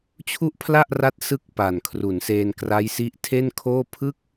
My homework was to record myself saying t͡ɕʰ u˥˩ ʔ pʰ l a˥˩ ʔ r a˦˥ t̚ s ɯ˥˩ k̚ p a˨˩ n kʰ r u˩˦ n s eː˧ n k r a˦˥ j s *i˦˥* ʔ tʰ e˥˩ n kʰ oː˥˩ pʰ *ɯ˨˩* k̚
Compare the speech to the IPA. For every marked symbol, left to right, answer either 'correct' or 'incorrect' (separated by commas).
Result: correct, incorrect